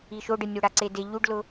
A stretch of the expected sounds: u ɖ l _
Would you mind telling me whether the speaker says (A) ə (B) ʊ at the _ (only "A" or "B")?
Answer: B